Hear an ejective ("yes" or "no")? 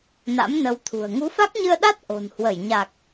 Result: no